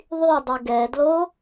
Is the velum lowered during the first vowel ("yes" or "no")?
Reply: no